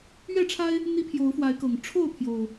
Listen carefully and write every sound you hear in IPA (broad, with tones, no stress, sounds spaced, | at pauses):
ɥ ɛ˥˨ ʈ͡ʂʰ a˦ ɪ̯ | n̪ i˦ pʰ j o˨˦ ʊ̯ f w a˨˦ ɪ̯ k ɤ˨˩ ŋ ʈ͡ʂʰ o˥˨ ʊ̯ pʰ j o˨˩ ʊ̯